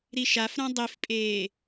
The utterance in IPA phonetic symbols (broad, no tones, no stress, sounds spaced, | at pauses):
ɾ i ʃ a f ɾ ã dˤ i f pʼ eː